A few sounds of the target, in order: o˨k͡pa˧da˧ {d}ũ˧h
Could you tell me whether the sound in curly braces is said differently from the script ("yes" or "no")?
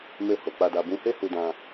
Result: yes